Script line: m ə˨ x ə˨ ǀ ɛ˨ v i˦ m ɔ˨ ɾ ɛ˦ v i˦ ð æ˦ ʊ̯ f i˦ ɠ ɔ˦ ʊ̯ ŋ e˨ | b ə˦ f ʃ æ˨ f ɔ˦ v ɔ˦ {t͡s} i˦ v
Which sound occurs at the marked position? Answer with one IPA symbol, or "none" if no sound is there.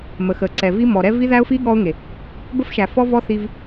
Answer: θ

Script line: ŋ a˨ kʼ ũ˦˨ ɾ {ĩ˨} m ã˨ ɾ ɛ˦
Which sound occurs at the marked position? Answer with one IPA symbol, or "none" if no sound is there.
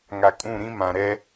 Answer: ĩ˦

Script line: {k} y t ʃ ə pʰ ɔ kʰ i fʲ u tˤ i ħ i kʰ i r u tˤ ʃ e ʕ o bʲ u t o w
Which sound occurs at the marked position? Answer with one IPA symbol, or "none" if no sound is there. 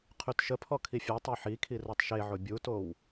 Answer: qʰ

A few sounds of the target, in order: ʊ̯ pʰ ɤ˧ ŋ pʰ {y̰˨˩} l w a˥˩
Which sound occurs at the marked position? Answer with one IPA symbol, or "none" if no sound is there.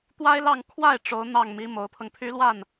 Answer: y˥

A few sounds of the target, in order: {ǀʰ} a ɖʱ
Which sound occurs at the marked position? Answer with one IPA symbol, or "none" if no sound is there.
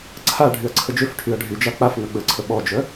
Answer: ǀʰ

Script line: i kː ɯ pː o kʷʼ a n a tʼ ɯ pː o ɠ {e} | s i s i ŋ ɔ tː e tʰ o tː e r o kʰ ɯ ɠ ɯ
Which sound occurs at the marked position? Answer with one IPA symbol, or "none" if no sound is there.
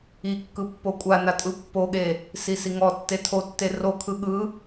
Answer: e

